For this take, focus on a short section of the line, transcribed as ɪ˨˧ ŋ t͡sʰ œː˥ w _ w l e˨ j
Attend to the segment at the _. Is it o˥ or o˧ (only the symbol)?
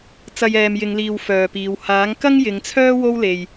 o˥